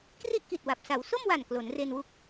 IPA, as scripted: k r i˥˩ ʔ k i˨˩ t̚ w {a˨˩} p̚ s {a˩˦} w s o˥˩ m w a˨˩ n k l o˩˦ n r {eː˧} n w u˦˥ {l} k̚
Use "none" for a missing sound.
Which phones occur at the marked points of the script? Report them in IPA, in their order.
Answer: a˨˩, a˩˦, e˧, none

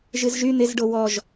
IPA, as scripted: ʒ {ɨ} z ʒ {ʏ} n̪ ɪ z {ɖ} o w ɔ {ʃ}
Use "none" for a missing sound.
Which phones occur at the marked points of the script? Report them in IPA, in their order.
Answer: ɨ, y, ɖ, ʒ

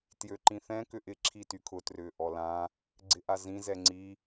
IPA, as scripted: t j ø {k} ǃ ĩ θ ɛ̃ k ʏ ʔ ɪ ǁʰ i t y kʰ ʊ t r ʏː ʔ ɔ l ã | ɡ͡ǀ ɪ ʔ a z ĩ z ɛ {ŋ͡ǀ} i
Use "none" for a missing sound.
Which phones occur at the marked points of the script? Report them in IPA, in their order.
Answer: none, ŋ͡ǀ

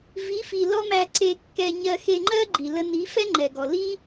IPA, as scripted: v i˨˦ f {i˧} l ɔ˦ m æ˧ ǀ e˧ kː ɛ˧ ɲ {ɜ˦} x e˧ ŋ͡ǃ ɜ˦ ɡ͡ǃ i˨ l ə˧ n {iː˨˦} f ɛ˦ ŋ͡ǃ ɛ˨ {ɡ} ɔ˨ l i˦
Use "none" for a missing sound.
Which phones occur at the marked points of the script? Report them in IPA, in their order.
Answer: i˨, ɜ˧, i˨˦, ɡ

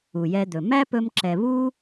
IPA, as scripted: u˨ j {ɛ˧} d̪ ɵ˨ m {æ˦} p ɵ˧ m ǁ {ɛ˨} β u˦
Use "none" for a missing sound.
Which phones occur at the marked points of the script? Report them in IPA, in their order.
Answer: ɛ˧, æ˦, ɛ˨

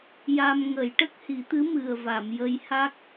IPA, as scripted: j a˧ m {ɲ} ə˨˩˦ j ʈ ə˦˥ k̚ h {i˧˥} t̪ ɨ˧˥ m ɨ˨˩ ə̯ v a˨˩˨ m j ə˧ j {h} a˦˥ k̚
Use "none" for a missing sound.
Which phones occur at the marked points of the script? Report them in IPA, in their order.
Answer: ŋ, i˨˩˦, h

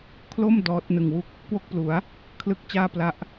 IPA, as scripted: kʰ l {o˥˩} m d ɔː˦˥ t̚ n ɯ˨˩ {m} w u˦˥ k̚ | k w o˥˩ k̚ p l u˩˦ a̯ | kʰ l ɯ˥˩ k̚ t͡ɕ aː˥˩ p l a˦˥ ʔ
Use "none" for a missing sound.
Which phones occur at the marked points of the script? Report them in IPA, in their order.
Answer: o˥˩, ŋ

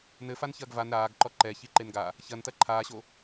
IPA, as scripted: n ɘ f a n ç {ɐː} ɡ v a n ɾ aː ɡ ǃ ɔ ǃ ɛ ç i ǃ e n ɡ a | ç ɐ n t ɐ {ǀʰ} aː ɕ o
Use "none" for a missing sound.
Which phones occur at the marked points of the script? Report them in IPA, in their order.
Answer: ɐː, ǃʰ

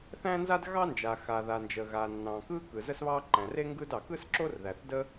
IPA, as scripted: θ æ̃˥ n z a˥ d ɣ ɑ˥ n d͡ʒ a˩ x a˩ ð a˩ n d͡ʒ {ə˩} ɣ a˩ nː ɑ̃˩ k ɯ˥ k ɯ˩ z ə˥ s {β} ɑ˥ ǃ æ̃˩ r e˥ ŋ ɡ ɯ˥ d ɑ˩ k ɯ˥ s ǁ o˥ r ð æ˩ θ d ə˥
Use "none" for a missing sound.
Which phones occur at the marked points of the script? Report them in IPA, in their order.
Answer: ə˩, β

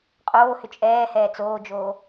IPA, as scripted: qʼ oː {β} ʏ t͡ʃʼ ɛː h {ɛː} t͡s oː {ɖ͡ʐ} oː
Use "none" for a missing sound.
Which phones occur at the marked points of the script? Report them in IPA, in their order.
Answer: h, ɛː, d͡ʒ

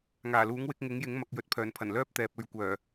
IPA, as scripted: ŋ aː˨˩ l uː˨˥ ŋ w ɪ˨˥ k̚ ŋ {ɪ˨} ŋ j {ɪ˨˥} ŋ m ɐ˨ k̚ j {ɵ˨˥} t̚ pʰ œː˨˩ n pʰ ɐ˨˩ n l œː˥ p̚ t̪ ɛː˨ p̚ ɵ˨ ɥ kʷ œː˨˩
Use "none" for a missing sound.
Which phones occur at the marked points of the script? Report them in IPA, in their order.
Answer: ɪ˨˥, ɪ˨˥, ɵ˨˥

